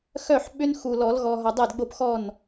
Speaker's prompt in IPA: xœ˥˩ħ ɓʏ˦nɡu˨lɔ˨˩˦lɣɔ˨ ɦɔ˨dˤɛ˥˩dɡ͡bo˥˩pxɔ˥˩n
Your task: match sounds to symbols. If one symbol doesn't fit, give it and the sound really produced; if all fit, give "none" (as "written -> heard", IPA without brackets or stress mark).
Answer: ɡ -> x